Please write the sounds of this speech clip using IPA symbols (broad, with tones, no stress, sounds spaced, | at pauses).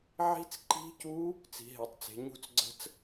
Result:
ʕ i̤˦˥ t͡s ǃ i̤˦˥ c u˦˥ | t͡s i̤˨˦ ɦ e˨˦ tˤ t͡s e̤˨˦ ɲ ṳ˦˥ t͡s ɡ͡ǀ ə̤˦˥ t͡s